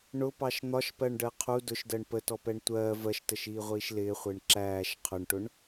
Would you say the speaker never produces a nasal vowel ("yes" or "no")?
yes